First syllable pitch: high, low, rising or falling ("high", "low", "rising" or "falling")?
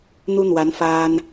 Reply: high